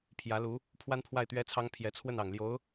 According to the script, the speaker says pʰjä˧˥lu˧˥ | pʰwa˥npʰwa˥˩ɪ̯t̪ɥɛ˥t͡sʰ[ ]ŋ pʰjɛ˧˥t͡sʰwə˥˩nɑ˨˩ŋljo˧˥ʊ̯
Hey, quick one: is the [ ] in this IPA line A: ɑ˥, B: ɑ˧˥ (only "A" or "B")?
A